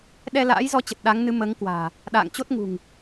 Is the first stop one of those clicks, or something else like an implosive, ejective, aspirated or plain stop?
implosive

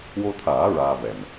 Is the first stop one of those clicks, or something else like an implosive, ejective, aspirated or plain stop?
aspirated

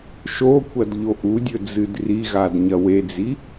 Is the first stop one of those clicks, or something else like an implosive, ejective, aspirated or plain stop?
plain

